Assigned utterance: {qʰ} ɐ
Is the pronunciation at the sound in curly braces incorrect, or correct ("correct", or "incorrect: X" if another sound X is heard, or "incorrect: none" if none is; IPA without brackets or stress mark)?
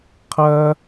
correct